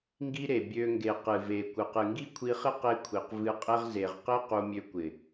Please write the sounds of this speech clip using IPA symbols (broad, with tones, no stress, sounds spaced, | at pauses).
ŋ ɡ i˦ ɾ e˨ bʲ ø˧ ŋ ɡ e˨ q ɨ˨ v e˨ kʷ ɨ˨ q ɨ˨ ŋ ɡ i˦ kʷʰ i˧ χ ɪ˦ q e˦ kʷʰ i˨ q v ɨ˧ qʼ e˦ ʁ z e˨ ʁ q ɪ˦ q u˧ mʲ ø˧ kʷ ɪ˨